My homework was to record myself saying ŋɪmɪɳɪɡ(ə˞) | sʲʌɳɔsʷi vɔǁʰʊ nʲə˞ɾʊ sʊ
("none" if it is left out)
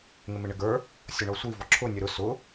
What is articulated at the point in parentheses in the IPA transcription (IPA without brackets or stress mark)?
ə˞